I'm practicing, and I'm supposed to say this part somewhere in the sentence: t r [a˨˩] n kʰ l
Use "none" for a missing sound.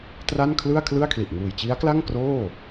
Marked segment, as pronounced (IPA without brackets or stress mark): a˥˩